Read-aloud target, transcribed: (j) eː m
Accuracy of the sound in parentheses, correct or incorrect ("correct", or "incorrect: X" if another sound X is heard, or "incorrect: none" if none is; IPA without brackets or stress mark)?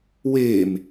incorrect: w